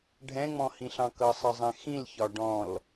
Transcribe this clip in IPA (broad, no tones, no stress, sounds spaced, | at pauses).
ɖʱ ɛ̃ ŋ͡m ɔ̃ h ĩ ɬ ɑ̃ k ʌ sˤ ʌ zˤ ɛ̃ x ĩ l ç ɒ ɖ ɔ̃ l